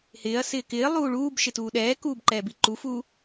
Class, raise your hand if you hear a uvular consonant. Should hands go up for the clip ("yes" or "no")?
no